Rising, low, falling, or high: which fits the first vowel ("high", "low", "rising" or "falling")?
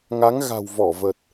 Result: rising